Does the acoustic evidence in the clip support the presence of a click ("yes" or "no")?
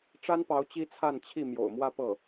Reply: no